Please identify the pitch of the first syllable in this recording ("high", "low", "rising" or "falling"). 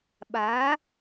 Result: rising